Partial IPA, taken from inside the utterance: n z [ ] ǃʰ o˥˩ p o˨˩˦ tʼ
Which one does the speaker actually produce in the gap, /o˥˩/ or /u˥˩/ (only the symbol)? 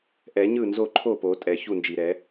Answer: o˥˩